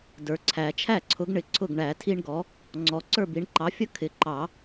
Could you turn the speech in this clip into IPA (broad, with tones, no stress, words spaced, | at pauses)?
də˞˩ǀʰæ˨˩˦ t͡ʃʰæ˥˩ǀʰʊ˩˥ɡɳɪ˩˥ ǀʰʊ˥˩ɡɳæ˨˩˦tʰi˥ɳɡɔ˩˥ | ŋ͡ǀɔ˩ ǀə˞˥˩bi˨˩˦ɳǃɑ˩˥fʲʌ˥ kʰɪ˩˥ǃɑ˨˩˦